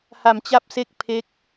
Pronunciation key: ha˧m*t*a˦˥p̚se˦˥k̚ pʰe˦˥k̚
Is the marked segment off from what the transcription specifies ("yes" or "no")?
yes